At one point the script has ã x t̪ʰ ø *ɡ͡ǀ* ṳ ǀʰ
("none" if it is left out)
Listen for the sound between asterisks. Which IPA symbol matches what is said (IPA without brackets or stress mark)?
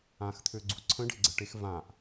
ɡ͡ǀ